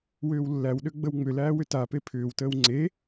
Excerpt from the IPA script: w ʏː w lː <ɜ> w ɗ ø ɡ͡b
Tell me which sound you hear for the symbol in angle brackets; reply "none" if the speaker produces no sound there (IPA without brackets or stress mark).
æ